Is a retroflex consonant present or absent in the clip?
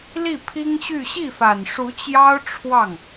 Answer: present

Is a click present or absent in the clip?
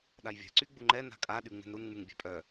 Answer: present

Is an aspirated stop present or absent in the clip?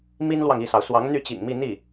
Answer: absent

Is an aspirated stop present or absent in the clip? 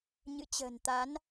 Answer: absent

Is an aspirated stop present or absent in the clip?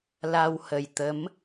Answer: absent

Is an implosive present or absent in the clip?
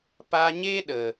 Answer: present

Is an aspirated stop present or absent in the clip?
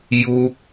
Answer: absent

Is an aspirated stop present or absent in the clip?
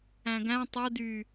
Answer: absent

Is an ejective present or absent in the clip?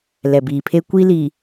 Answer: absent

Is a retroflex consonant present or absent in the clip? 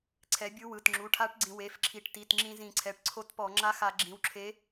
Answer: present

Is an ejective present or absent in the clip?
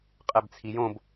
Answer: present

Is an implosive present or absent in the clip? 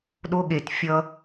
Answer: present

